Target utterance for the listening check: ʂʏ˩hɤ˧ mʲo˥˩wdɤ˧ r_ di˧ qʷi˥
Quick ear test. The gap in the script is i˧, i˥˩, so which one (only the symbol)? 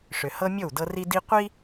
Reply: i˧